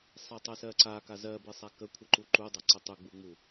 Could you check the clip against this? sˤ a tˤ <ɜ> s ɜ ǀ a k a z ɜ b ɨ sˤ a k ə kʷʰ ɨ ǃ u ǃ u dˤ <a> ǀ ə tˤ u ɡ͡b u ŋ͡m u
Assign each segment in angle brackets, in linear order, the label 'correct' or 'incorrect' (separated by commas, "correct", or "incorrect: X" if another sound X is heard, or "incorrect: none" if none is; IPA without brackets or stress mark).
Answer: correct, correct